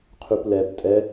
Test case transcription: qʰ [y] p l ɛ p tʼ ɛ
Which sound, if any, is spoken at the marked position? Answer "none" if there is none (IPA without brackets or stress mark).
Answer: y